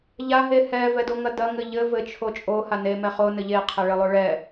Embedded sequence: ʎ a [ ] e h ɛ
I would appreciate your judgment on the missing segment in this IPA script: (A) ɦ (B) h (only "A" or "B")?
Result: A